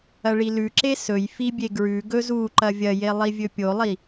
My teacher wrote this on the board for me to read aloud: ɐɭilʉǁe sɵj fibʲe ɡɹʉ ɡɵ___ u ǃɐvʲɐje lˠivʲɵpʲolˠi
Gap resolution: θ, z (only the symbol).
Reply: z